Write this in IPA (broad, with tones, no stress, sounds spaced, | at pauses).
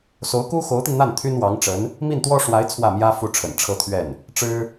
s o˧˥ ʊ̯ k u˥ x o˧˥ ʊ̯ t̪ i˧ n n̪ a˥˩ n t̪ʰ y˥ n w ɑ˧˥ ŋ ʈ͡ʂ ə˧˥ n | m i˥˩ n t̪ w ɔ˥ ʂ w a˧˥ ɪ̯ t͡sʰ w ä˥˩ m j ä˥ f u˥˩ ʈ͡ʂʰ ə̰˨˩ n ʈ͡ʂʰ ɤ˥˧ t̪ʰ ɥ ɛ˥˩ n | ʈ͡ʂ ɻ̩˥